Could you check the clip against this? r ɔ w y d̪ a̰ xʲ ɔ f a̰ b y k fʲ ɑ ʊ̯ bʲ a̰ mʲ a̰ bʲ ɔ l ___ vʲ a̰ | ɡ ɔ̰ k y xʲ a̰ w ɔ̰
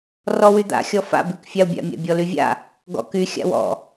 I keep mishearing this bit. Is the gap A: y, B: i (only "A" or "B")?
A